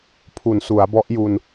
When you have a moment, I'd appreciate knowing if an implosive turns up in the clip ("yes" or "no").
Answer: no